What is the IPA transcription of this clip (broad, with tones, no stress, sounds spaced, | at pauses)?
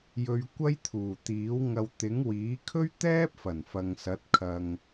j ɵ˧ ɥ kʷ ɐ˥ j t̪ʰ uː˨˩ t̪ iː˨˥ w ŋ ɐ˧ w t̪ ɪ˨˥ ŋ w iː˨˥ kʰ ɵ˥ ɥ t̪ ɛː˥ p̚ f ɐ˨˩ n f ɐ˨ ŋ s ɐ˨˥ t̚ kʰ ɐ˧ ŋ